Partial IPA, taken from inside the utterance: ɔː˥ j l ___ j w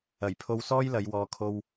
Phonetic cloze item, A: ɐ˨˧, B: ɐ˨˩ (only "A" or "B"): A